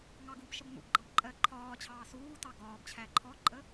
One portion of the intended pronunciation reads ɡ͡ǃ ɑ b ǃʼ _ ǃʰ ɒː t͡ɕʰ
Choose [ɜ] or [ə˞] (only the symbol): ɜ